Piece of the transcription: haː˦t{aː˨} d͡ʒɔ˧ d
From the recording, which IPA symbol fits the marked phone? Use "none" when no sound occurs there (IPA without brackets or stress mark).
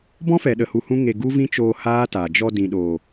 aː˨